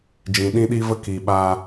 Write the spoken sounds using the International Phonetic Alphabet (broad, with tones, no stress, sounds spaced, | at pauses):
d͡ʒ ĩ˨ ɗ ĩ˦ ɗ i˦ v ə˦ k i˨ ɓ a˧